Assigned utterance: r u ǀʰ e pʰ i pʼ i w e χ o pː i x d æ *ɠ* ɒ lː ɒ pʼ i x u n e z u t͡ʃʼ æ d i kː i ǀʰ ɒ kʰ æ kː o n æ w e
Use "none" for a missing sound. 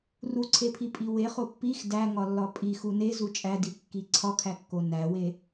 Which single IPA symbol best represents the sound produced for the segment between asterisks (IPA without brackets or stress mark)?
ŋ